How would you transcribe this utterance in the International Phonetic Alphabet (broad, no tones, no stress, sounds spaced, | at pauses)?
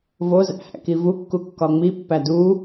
v o z æ̰ h æ̰ k i v u kː u kː ɒ ŋ͡m i pː æ d u